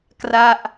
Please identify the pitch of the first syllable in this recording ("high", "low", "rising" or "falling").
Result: falling